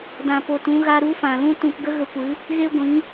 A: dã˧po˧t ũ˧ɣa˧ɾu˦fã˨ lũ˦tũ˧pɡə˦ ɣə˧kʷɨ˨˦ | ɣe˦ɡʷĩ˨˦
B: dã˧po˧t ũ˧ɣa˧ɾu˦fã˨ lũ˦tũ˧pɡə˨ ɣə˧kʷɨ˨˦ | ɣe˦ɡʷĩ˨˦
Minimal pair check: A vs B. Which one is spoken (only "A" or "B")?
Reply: A